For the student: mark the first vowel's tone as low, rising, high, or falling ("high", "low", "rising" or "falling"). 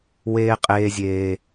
high